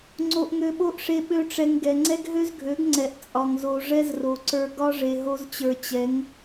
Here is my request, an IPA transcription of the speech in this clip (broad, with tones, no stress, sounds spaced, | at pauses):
ŋ͡ǀ o˧ ʔ ŋ ø˧ ɓ o˦ ʔ ʂ e˧ ɓ ø˦ ʈ͡ʂ ɛ˧ ŋ ɡ ɛ˨ ŋ͡ǀ ɛ˦ ɡ ɦ ø˦ z ɡʱ ø˨˦ ɡ ŋ͡ǀ ɛ˨ ʔ t͡sʼ ɒ˨ ŋ z o˨ ʐ ɛ˦ z r o˨ ǀ ə˞˧ ɡ ɒ˦ ʐ e˨ ɦ o˧ z t͡ɕ ə˞˨ t͡ɕ ɛ˨˦ ŋ